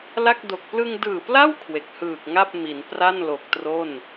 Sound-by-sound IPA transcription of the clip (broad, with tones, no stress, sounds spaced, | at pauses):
l a˥˩ k̚ d o˨˩ k̚ p l ɯ˧ ŋ d ɯː˨˩ p l a˥˩ w kʰ w e˨˩ k̚ h ɯː˨˩ k̚ ŋ a˥˩ p̚ m i˩˦ n p r a˥˩ n l o˨˩ k̚ t r o˥˩ n